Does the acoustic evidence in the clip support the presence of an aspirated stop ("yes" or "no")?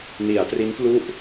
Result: no